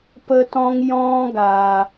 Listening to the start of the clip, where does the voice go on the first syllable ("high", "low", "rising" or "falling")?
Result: high